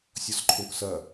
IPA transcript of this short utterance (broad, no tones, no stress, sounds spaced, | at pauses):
sʲ ɔ s ǃʰ õ k s ɐ